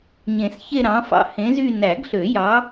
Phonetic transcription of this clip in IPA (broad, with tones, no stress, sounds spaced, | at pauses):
ɲ ẽ˨˩˦ s ç e˥˧ ɾ ɑ̃˨˥ f ɑ̰˥˧ h ẽ˨˥ z y˥˧ n æ˨˩˦ ɡ ɬ ø˨˩˦ j ɑ˨˥